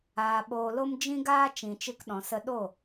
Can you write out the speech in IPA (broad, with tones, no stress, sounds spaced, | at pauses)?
aː˧ ɓ oː˧ l o˦ m d͡ʒ ĩ˦ ɡ aː˦ t͡ʃ ĩ˨ t͡ʃ ɨ˧ k ɗ ɔ̃˨ s ə˧ ɗ o˦˨